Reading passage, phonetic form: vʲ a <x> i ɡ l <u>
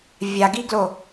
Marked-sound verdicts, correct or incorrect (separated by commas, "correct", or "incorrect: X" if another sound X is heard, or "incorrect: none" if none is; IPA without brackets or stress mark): incorrect: ɡ, incorrect: o